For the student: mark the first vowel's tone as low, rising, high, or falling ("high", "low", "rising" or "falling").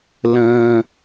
high